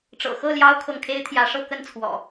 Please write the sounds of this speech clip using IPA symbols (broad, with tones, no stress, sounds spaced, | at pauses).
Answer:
ʈ͡ʂ ɤ̰˨˩ x ɤ˥˨ l j ɑ˦ ʊ̯ kʰ ɤ˨ ŋ kʰ e˦ ɪ̯ t̪ʰ j ä˨˦ ʂ ɤ˥˨ k ə˥˨ n t͡sʰ w ɔ̰˨˩